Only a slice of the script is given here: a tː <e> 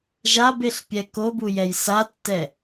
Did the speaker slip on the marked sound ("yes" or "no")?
yes